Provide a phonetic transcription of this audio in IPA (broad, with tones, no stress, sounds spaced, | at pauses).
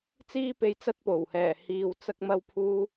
t͡s iː˥ p e˧ j t͡s ɐ˥ t̚ p o˨˩ w h ɛː˨˩ h iː˨ w t͡s ɐ˥ k̚ m ɐ˧ w pʰ uː˧